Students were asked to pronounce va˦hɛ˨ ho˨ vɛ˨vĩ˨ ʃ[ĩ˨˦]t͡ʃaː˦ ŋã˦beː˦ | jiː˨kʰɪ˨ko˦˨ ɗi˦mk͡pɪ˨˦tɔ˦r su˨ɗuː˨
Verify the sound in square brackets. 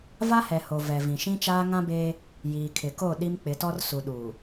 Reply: incorrect: ĩ˦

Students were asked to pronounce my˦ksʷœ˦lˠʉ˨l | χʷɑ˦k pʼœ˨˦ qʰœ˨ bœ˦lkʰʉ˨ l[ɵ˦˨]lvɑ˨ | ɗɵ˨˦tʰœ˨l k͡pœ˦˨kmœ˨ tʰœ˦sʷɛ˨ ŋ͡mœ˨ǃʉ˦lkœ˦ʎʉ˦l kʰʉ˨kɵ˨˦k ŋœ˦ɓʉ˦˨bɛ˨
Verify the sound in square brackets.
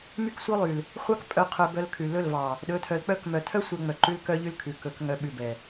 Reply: correct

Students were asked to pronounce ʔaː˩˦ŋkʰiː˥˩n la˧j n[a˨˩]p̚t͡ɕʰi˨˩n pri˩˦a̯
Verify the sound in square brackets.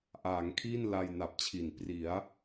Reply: correct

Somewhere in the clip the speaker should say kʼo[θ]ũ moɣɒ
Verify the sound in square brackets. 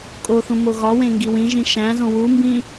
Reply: correct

